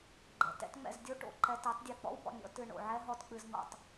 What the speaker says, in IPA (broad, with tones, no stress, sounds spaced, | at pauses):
ɡ͡ǃ ɛ̰˨ t ɛ̰˦ t ŋ͡m ɛ̰˧ z dʲ o˦ ʈ o̰˨ ǃ ɛ˧ t ɛ˨˦ tˤ dʲ ɛ˨ k͡p ɔ̰˦ w b ɔ̰˨ nʲ ɔ̰˧ t ɨ˨ ɳ o̰˨ ʕ ɛ˦ ɦ ɔ˧ t k͡p ɨ˧ z n̪ ɔ̰˨ tˤ